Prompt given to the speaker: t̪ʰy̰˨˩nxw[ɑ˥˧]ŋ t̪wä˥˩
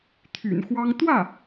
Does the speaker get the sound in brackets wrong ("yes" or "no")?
yes